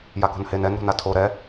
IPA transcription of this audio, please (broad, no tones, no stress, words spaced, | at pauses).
jako̤nhen ɛnɾo̤n atʰo ɾɛ